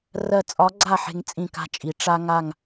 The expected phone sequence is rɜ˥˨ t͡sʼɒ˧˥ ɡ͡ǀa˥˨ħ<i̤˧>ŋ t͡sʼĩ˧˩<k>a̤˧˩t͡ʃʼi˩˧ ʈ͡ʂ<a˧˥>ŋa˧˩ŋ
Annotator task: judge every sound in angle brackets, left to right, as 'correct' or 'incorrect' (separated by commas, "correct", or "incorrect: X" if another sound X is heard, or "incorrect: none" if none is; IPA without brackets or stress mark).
incorrect: e̤˧, correct, incorrect: a˧